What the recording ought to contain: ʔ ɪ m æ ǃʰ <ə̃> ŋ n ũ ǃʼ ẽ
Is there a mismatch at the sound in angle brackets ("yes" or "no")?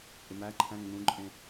yes